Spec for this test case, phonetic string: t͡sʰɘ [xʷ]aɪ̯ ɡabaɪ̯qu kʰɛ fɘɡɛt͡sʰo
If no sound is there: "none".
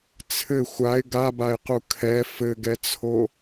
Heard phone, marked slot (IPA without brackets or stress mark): xʷ